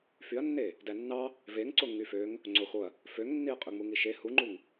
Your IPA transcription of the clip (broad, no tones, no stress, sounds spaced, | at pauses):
f y ɐ̯ nː e | d æ nː ɑ | v e ŋ ǀ o ŋ y f ø ŋ | ŋ͡ǀ o x o ɐ̯ | f ø ŋ nː i ɐ̯ qʼ ø ŋ͡m u ŋ i ʃ e h u ŋ͡ǃ u ŋ